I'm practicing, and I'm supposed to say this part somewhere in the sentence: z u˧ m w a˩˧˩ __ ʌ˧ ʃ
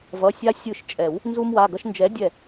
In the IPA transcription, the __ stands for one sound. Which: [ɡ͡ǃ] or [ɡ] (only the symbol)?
ɡ